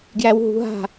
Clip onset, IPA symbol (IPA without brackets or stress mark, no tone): ɡ